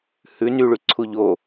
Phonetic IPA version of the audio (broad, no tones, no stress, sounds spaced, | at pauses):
h ʉ n y ɭ y ǀʰ u ʎ o